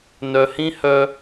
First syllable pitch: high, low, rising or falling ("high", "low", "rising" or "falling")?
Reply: low